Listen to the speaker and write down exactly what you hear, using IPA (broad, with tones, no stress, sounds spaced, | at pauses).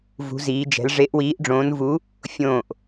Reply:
v ṳ˨˦ z iː˨˦ d͡ʒ ɛ̤˨˦ l ʐ e˨˦ ʔ w iː˨˦ ʔ ɖ͡ʐ õː˨˦ n v u˨˦ | fʲ õː˧˩ ʔ